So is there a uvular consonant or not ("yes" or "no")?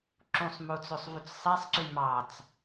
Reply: no